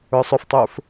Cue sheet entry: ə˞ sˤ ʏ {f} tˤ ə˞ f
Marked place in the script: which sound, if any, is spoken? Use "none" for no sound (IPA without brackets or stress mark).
f